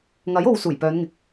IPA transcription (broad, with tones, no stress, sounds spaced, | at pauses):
ŋ ɐ˨˥ j o˧ w s uː˨˩ j p œː˨˧ n ŋ ɪ˨ k̚